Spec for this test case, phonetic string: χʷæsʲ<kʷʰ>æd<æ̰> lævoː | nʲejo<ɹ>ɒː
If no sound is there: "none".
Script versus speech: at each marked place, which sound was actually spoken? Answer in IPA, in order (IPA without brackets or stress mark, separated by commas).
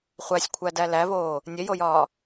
kʷʰ, æ, j